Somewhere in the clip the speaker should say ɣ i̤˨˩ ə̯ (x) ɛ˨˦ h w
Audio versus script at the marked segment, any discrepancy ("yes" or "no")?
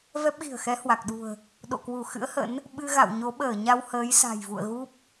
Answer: no